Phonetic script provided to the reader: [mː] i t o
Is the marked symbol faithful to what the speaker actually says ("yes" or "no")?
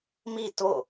no